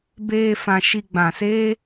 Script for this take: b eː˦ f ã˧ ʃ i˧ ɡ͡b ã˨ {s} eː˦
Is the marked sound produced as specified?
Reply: yes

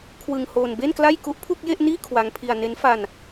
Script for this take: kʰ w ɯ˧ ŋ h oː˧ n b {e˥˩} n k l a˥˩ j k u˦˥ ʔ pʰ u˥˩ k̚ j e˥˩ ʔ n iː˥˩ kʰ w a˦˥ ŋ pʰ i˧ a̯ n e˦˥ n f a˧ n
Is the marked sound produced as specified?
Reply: yes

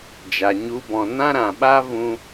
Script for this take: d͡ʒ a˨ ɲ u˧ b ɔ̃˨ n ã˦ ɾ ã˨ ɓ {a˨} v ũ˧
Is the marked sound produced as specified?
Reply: no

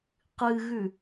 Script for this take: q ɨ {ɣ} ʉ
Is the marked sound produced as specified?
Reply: yes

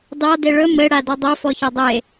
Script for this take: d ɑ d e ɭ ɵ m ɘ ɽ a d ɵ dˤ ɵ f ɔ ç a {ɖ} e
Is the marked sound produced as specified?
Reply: no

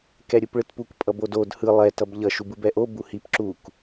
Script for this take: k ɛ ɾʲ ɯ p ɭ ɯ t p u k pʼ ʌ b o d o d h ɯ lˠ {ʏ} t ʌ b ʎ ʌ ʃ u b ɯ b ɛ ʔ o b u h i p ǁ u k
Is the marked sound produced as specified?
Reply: no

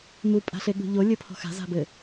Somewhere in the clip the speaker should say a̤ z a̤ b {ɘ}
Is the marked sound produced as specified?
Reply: yes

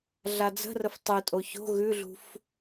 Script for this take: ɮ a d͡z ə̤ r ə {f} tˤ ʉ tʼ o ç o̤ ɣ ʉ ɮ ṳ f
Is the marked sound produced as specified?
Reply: yes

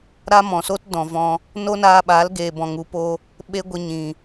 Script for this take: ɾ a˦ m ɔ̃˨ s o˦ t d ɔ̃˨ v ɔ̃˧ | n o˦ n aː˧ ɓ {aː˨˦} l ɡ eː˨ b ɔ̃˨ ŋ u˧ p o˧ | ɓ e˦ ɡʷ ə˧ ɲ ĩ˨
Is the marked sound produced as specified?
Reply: yes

